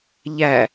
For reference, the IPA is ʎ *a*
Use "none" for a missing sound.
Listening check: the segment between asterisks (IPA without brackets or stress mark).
æ